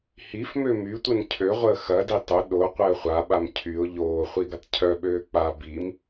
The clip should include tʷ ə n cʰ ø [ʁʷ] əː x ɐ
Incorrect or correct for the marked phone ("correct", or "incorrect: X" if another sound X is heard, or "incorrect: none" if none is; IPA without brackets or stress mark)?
correct